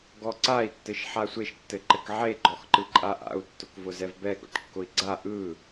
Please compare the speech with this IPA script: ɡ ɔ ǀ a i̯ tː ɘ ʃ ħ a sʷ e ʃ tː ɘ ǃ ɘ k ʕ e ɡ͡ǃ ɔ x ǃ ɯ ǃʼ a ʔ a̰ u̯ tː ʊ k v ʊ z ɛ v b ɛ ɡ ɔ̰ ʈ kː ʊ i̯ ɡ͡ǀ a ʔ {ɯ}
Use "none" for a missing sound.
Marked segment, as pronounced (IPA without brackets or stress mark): ɯ